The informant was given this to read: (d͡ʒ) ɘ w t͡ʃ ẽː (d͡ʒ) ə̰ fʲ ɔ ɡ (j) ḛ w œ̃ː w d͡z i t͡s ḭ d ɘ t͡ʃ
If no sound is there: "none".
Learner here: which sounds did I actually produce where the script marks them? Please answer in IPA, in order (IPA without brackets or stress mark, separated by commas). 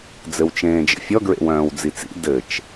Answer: d͡z, d͡ʒ, ɹ